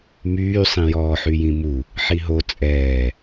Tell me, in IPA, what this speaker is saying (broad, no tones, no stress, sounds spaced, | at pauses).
m yː sˤ ĩ j ɔː ħ y j ĩ m u | ħ i ɦ o t͡sʼ ɛː